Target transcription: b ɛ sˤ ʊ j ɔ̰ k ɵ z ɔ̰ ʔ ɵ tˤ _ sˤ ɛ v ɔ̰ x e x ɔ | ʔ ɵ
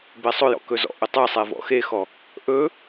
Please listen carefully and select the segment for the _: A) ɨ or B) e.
A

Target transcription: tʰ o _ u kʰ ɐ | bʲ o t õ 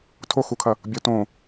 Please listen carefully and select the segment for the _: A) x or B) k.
A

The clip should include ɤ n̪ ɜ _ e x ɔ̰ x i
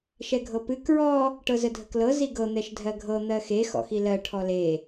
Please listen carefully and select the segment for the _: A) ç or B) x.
B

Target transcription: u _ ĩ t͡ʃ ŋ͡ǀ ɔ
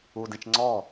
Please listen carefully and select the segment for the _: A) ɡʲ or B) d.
B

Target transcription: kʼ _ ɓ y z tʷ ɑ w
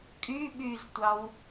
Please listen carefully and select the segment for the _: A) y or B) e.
A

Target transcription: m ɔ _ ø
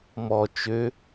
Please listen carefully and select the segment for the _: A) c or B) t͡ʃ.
B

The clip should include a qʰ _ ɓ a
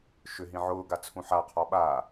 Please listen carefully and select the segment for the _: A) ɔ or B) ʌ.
A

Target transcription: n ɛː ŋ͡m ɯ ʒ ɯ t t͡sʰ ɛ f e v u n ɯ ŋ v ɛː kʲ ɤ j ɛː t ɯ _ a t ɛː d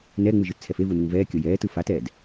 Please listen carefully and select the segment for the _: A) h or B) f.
B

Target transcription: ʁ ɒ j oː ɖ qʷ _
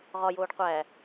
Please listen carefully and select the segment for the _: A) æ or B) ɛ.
A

